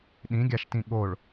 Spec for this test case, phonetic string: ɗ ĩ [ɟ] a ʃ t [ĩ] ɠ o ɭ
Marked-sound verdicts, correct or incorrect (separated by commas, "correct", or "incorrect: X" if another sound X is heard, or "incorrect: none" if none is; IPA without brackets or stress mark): incorrect: ɡʲ, correct